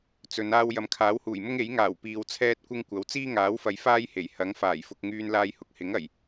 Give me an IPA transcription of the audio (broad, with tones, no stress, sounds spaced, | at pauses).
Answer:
t͡s ɵ˨˧ n aː˥ w j ɐ˨˥ m kʰ aː˨˥ w h uː˨˩ j m ʊ˥ ŋ e˨˥ j ŋ aː˨˩ w p iː˨ w t͡sʰ ɛː˥ t̚ kʷ ɪ˥ ŋ kʷ ɐ˨˥ w t͡s iː˥ ŋ aː˨˥ w f ɐ˨ j f aː˥ j h e˨˩ j h ɐ˨˥ ŋ f aː˨˩ j f ʊ˧ k̚ ŋ yː˧ n l aː˧ j h ʊ˨ k̚ h ɪ˨˥ ŋ ɐ˨˩ j